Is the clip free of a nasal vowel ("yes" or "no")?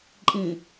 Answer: no